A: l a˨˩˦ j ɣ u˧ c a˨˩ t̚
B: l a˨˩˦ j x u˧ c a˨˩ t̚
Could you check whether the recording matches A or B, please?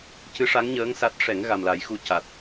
B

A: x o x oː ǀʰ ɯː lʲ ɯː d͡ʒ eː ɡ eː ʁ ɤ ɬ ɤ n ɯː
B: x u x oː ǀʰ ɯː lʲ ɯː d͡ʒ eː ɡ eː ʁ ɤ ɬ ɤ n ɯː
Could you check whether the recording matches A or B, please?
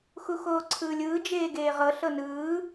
B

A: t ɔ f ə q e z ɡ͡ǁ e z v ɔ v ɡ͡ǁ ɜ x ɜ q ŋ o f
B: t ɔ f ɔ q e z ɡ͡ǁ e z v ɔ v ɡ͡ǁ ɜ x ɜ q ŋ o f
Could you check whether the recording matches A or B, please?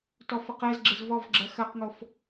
A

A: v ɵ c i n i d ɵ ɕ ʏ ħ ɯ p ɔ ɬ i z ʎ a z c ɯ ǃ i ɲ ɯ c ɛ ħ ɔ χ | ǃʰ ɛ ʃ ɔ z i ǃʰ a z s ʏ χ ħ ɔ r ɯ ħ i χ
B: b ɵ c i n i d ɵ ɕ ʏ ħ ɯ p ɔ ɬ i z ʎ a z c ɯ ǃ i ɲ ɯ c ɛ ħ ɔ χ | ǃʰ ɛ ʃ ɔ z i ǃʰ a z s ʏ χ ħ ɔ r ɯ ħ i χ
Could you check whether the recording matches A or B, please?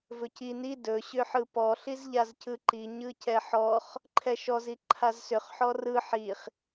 A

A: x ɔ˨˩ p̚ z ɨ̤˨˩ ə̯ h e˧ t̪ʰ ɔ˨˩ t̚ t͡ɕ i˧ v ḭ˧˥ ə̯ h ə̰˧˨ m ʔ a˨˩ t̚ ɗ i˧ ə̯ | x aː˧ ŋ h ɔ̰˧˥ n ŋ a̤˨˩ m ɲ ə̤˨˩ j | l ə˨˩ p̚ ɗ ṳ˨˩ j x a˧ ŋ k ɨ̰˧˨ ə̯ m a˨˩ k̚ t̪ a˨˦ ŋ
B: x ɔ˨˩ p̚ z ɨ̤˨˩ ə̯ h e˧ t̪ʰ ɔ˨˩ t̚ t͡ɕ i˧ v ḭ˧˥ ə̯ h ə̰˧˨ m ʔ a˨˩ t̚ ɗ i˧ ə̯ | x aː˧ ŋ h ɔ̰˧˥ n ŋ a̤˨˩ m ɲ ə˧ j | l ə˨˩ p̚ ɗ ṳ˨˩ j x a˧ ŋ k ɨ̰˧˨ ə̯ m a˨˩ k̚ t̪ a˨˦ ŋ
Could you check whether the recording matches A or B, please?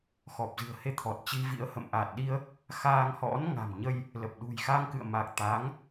B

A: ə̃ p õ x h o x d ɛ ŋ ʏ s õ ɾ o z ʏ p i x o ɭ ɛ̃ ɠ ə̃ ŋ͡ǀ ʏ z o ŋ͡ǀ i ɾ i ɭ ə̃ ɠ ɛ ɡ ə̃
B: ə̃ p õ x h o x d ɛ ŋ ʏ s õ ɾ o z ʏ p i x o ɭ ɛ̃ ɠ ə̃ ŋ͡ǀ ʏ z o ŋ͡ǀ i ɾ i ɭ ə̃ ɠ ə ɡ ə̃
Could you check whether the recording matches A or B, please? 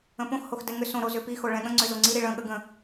B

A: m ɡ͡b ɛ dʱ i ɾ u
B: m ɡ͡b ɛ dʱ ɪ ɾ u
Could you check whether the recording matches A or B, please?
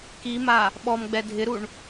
B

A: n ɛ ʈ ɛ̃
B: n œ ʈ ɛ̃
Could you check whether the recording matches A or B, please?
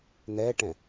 A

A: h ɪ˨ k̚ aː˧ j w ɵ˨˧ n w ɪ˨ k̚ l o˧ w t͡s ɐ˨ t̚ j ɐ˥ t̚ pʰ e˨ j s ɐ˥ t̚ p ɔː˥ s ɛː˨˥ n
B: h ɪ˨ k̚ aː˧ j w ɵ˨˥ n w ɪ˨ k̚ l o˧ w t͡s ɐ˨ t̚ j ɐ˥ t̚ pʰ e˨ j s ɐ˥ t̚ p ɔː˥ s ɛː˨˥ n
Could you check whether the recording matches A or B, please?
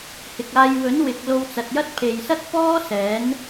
B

